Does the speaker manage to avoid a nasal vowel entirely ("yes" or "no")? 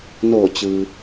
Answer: yes